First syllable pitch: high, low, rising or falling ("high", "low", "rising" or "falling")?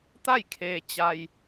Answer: falling